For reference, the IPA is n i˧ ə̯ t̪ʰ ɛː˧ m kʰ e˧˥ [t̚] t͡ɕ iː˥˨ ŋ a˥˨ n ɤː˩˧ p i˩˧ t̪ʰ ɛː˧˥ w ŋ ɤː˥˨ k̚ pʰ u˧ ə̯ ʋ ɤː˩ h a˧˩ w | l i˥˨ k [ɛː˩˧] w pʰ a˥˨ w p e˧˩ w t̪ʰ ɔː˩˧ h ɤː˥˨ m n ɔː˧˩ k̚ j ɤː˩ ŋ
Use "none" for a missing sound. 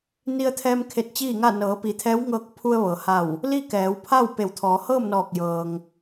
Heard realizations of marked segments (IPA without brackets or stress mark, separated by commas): t̚, ɛː˩˧